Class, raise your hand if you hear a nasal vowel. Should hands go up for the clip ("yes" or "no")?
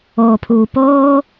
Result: no